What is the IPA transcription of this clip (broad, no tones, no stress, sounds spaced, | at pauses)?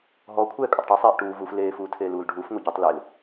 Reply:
ɦ ɔ kʷʰ ɛː kʼ ɔ tˤ ʈ i sˤ eː ʔ ʈ uː v u f l eː f uː tʰ eː l uː l ɖʱ uː f ŋʷ ɛ ɟ u tˤ l e l